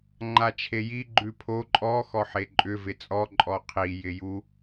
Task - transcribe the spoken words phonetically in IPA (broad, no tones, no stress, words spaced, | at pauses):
ŋ͡ǃat͡ʃʰeji ɡ͡ǃʉpʰo ǃʼɔ xɔħeǃʼʏ vɪt͡sʼɔ ǃʼɔqʰi jɪju